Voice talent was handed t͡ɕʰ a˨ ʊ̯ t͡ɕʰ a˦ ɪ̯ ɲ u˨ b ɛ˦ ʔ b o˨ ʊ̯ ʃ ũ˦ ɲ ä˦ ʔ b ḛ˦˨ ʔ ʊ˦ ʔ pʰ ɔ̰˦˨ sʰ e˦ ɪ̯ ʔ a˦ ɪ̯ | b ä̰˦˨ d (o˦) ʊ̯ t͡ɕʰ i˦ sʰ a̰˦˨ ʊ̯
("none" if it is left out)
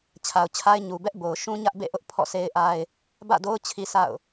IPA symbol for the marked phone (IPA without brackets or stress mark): o˦